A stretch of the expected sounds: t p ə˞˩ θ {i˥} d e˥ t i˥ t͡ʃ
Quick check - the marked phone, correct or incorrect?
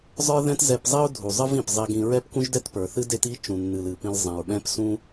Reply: incorrect